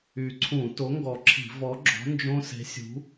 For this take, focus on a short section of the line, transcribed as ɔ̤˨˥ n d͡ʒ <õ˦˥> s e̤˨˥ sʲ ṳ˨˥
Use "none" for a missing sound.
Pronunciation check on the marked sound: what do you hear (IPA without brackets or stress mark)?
õ˦˥